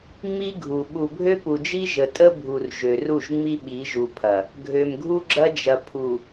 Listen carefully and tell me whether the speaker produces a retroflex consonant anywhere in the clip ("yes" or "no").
no